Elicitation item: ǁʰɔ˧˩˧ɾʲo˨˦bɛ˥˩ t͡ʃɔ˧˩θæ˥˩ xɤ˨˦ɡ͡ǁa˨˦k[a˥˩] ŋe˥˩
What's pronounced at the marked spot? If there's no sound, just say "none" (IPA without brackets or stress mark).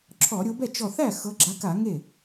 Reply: a˧˩˧